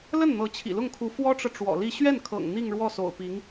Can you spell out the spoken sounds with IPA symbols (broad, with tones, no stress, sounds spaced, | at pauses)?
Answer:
l ə˥˩ n n̪ ɤ˧˥ t͡ɕʰ ḭ˨˩ l ʊ˥˩ ŋ kʰ u˧˥ f w ɔ˥ ʈ͡ʂ ɤ˨ ʈ͡ʂ w ɔ̰˨˩ l i˥˧ ɕ ɥ ɛ˥˩ n kʰ ɤ̰˨˩ ŋ n̪ i˥˧ ŋ ɻ w ɔ˥˩ s o̰˨˩ ʊ̯ p i˧˥ ŋ